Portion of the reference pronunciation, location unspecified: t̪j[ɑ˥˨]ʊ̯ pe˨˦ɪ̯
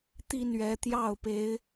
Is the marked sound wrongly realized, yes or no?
no